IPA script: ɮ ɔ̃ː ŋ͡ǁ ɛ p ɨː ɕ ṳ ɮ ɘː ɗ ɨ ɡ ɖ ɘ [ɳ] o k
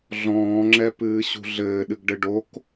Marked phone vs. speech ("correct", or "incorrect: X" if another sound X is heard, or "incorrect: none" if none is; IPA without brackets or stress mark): incorrect: ɖ